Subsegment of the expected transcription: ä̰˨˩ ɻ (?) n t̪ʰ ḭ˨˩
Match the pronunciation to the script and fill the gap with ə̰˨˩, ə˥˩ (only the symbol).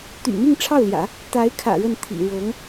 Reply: ə˥˩